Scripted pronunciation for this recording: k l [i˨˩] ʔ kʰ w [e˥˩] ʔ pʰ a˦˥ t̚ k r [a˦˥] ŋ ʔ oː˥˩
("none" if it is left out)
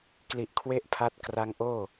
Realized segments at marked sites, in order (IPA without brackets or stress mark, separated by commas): i˨˩, e˥˩, a˦˥